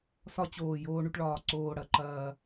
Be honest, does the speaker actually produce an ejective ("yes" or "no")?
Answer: no